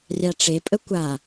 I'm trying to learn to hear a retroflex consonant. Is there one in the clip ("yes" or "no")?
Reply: yes